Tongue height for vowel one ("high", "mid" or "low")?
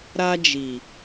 low